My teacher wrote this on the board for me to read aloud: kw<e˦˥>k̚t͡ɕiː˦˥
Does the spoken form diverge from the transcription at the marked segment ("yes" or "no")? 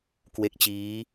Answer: no